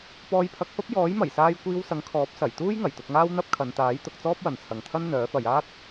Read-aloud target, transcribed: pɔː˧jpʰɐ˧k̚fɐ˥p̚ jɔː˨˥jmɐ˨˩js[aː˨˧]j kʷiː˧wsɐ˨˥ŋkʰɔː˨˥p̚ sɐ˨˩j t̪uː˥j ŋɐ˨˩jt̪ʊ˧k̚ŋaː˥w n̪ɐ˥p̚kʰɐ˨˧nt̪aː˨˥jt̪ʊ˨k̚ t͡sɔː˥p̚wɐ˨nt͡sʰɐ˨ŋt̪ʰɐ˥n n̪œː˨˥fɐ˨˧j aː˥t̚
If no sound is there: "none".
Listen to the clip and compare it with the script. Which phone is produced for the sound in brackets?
aː˧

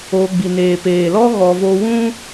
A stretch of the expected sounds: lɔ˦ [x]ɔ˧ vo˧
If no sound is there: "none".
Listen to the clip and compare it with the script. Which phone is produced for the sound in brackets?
ɣ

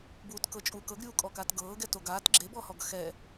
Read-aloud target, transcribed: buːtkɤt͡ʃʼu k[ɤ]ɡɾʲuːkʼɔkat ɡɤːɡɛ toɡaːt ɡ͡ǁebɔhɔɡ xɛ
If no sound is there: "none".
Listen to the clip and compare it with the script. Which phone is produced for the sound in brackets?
ɤ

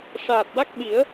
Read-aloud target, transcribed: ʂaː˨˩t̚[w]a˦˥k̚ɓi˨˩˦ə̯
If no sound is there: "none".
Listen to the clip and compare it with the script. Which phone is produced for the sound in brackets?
w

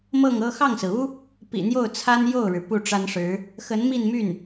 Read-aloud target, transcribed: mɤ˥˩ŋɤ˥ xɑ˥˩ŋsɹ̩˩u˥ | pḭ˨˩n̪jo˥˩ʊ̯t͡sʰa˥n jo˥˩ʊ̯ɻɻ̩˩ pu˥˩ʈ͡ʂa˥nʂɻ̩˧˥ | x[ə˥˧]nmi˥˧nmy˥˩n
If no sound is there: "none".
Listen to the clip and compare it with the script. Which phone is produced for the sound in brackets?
ə˧˥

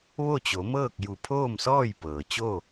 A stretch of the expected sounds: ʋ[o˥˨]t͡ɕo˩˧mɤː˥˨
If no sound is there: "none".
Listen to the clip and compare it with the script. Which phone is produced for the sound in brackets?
o˥˨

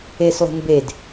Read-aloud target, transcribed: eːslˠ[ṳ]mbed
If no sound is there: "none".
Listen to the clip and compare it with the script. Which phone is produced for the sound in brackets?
ṳ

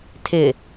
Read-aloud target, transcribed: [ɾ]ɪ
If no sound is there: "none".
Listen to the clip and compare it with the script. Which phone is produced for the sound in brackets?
tʰ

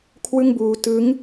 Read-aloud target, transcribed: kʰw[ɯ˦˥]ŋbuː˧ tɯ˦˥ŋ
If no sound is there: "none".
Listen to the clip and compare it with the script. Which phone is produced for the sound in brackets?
ɯ˥˩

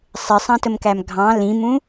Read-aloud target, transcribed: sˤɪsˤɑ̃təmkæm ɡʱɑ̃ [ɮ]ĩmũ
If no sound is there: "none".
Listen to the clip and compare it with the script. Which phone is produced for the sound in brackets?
l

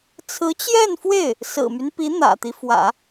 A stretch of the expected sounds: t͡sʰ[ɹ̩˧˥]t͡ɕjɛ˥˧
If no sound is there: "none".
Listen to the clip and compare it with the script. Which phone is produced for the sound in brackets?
ɹ̩˧˥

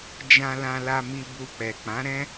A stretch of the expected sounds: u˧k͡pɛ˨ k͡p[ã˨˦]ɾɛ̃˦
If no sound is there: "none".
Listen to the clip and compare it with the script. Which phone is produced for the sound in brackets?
ã˨˦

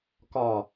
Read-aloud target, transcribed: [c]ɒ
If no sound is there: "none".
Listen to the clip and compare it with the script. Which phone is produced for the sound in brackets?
k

